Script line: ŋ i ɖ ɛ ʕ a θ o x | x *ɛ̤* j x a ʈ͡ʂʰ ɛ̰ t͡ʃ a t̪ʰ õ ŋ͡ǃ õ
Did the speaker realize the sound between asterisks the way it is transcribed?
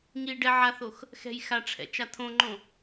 yes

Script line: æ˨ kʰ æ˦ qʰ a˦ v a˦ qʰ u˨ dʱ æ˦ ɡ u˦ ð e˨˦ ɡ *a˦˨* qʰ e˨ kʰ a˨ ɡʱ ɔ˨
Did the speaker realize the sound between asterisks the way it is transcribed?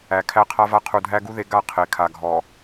yes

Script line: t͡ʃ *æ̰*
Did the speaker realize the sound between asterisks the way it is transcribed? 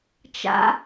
no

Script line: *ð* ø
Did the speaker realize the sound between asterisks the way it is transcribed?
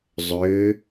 no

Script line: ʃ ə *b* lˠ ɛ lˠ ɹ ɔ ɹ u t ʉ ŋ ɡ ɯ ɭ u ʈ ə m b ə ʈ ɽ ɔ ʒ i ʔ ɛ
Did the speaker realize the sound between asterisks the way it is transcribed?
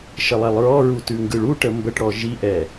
no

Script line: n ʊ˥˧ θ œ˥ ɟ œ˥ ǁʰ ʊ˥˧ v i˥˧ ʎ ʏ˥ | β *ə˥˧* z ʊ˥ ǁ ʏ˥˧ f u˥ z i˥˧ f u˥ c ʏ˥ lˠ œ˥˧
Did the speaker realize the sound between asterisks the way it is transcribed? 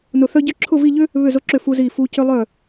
no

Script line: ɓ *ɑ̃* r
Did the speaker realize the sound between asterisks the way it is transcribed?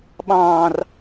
yes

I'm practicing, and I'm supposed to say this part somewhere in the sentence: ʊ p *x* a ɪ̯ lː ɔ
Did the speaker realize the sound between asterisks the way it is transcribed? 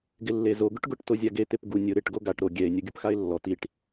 yes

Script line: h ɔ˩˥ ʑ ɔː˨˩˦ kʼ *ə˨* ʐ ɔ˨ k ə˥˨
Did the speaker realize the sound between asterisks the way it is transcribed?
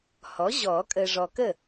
yes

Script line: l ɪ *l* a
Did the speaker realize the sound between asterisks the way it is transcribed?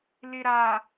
no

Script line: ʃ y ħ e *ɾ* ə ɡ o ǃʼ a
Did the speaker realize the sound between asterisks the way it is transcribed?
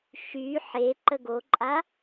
no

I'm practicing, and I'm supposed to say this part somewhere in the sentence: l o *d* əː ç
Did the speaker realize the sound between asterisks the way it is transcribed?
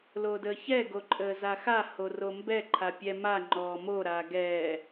yes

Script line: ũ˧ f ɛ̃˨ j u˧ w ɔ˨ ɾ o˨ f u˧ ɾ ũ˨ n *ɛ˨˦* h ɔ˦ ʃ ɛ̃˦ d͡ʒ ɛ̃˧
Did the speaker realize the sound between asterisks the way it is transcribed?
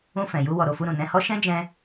no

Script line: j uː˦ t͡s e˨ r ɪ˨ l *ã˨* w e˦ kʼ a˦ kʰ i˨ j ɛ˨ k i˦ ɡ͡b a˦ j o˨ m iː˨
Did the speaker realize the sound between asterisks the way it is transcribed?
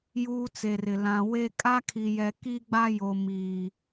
yes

